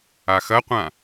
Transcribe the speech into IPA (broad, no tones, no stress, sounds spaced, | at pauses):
a x ɐ qʷ ã